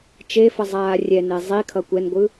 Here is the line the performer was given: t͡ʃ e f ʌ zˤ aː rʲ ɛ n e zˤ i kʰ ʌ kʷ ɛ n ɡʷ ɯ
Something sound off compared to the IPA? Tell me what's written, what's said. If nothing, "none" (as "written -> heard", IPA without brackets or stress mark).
none